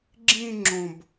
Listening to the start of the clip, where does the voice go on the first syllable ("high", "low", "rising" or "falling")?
high